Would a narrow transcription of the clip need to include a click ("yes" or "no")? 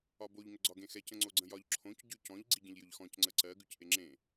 yes